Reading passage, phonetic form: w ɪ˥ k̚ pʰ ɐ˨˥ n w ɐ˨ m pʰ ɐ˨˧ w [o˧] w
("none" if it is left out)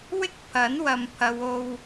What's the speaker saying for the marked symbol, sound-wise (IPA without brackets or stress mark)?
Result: o˧